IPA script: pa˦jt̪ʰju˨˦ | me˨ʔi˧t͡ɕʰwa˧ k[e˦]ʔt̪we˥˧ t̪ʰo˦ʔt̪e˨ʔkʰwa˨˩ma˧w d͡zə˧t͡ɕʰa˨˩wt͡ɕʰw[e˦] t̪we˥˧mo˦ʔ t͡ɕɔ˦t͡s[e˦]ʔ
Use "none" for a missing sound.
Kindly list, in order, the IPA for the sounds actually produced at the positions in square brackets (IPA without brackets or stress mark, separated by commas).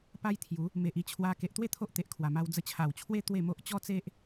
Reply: e˨, e˦, e˦